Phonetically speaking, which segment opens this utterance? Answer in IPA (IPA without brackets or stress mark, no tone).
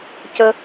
c